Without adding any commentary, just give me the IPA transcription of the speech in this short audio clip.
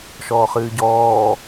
ʃ ɔː χ ɨː ɟ ɔː

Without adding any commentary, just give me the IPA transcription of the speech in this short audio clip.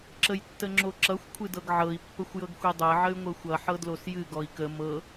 ǁ ə j tː ə ŋ͡ǁ o ǁ ʌ xʷ kʷʰ ɨ d ɤ ɡ ʕ ɤ i̯ pː ə xʷ j ɤ ɡ xʷ i dˤ ɤ ʕ ə y̯ ŋʷ ɤ xʷ ʌ ħ ɤ d l o s j ɨ ɡ ɔ i̯ k ə m ɤ

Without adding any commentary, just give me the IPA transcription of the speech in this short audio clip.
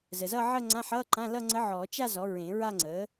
z əː˨ z ʌː˥˧ ʕ əː˥˧ ŋ͡ǀ ã˧˥˧ ħ ʌː˧˥˧ ǃ ã˧˥˧ l ʌ˥˧ ŋ͡ǀ ə˧˥ ʕ ɔː˨˩˦ t͡ʃ a˥˧ z ɔ˩˥ ɹ ẽ˨˩˦ ɹ a˥˧ ŋ͡ǀ əː˩˥

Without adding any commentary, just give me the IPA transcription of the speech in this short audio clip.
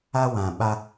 a˦ w ã˨ ɓ a˦

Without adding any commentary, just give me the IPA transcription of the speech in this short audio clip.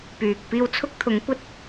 p yː˨ k̚ p iː˧ w t͡sʰ ʊ˥ k̚ t̪ʰ ʊ˨˥ ŋ kʷ ɐ˥ t̚

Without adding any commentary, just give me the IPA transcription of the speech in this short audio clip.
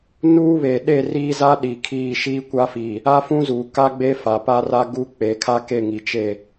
n uː˦ β e˨ ɗ e˦˨ r iː˦ z a˦ ɗ i˨ kʰ iː˦˨ ʃ iː˦ kʷ a˦ f i˨ | a˦ f ũ˦ z uː˨ k a˦ ɡ͡b e˦ f a˨ p a˦ r a˦ ɡ u˦ k͡p e˨˦ kʰ a˦ k e˦˨ ŋ i˨ t͡ʃ e˦˨

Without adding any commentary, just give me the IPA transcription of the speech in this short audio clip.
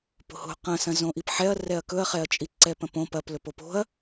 p o̤ h o̤ q ɐ̃ s ɐ̃ z õ ʔ i p ħ ɛ ɐ̯ r ɛ ɐ̯ k ɵ ɐ̯ χ ɛ ɐ̯ t͡ʃʼ i ǀ ɛ p ɐ̃ p õ p ɐ p l ɵ p o p o̤ ɐ̯

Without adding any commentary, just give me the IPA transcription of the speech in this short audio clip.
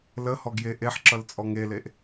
l ə h ɔ ɡ j e ʔ e ħ ǁ ʌ l t͡sʼ ɔ ŋ e l e ʔ

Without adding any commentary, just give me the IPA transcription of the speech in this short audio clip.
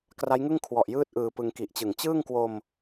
k r a˦˥ j ŋ ɯ˥˩ ŋ kʰ w ɔ˨˩ ʔ j ɯː˦˥ t̚ ʔ ɯː˧ p ɯ˧ ŋ k i˨˩ ʔ t͡ɕ ɯ˨˩ ŋ t͡ɕ ɯː˥˩ ŋ k w o˧ m

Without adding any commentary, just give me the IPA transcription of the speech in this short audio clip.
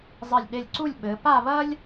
zˤ ɘ˧˩ lʲ ɗ e˧˩ lʲ ǀ u˥˧ lʲ ɓ ɘ˩˧ p a˥˧ β ɐ˥ lʲ

